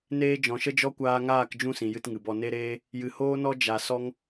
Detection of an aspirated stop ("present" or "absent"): absent